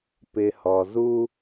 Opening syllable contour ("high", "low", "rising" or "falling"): low